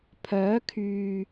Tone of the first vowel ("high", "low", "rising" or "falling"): rising